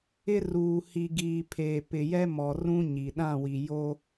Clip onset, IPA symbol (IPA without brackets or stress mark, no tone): ɪ